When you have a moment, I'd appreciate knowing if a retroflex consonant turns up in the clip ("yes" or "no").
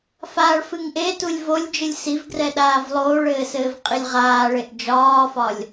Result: yes